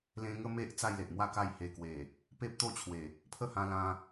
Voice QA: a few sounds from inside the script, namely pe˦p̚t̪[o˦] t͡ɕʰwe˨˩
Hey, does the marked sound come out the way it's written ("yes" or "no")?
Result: no